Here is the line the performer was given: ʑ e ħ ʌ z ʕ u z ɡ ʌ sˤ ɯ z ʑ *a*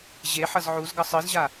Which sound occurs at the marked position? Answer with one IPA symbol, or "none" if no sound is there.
a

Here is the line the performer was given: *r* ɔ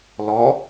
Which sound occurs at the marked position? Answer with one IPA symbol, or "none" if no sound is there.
l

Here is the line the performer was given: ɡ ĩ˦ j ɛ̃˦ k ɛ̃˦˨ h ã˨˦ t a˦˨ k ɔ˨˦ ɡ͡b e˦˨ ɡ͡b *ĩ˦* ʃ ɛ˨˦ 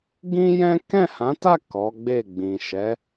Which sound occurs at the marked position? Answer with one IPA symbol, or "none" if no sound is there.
ĩ˨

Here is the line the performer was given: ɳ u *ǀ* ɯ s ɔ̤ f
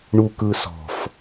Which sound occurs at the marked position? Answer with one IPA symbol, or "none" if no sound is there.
k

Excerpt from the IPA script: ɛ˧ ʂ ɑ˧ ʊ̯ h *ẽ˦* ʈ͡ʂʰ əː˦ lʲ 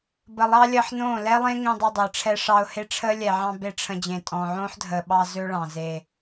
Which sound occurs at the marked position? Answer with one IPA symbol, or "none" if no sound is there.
e˦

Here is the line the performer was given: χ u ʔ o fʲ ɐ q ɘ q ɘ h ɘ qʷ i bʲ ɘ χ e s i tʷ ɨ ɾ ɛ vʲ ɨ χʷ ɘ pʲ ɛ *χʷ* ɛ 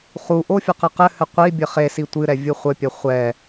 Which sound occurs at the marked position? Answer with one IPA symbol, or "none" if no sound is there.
χʷ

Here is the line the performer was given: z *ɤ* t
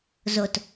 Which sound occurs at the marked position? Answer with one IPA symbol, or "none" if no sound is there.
o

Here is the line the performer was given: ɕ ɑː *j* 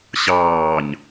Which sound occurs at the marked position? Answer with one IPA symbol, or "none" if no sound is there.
ɲ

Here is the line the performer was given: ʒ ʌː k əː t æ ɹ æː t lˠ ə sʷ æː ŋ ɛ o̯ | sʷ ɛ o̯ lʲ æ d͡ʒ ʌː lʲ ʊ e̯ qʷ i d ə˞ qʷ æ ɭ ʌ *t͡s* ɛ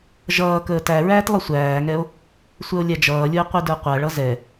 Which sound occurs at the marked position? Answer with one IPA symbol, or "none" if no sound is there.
z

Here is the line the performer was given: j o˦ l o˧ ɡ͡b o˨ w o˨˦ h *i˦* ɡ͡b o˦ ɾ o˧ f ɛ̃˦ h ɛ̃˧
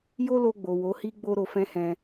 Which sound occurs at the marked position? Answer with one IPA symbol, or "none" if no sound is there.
i˦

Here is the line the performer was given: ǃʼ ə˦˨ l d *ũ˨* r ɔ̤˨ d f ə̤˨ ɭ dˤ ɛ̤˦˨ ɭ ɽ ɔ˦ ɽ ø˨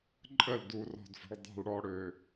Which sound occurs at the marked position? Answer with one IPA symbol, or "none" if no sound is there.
u˨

